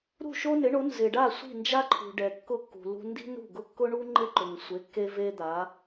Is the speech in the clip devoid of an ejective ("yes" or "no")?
yes